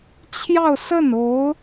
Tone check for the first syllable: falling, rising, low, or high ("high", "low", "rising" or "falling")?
falling